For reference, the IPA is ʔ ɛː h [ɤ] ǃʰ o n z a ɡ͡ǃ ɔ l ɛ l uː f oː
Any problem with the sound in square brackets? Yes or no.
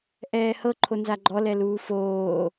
no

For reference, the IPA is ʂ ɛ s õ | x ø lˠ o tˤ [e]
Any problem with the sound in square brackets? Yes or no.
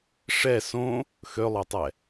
yes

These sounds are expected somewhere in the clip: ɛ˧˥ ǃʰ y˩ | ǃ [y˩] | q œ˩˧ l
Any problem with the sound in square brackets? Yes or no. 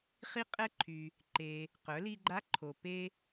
yes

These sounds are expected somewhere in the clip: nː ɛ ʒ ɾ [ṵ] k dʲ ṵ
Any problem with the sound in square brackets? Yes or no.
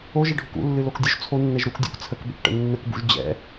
yes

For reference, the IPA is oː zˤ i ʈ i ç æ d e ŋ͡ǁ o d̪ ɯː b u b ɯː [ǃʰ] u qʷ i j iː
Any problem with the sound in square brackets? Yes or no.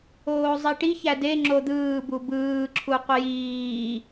yes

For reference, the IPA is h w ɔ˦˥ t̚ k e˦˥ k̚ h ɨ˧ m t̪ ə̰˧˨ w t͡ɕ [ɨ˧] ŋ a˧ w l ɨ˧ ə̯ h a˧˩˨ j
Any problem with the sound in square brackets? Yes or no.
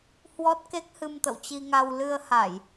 yes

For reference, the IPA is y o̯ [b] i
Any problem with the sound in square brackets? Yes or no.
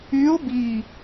no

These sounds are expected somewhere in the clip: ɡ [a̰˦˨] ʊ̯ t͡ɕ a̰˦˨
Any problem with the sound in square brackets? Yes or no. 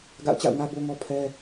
no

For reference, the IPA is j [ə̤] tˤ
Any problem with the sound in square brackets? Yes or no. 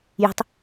no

